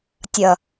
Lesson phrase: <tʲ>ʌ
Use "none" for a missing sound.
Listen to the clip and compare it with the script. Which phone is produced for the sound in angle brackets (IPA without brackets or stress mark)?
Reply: tʲ